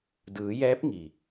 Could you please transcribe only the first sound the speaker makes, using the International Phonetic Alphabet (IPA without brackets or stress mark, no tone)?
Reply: d